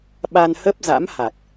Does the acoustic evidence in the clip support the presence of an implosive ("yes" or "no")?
yes